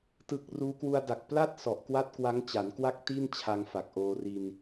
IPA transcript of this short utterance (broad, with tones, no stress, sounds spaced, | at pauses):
t ɯ˨˩ k̚ r uː˦˥ k w u˧ a̯ d a˨˩ k̚ p l a˥˩ t̚ s ɔ˨˩ ʔ k w a˥˩ t̚ k w a˦˥ ŋ t͡ɕ a˩˦ n k w a˥˩ k̚ t i˥˩ n t͡ɕʰ a˧ ŋ f a˨˩ k̚ ʔ oː˧ r i˧ n